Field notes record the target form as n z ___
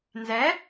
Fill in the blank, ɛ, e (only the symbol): ɛ